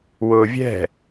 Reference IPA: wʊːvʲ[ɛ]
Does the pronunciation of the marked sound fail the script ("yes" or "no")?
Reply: yes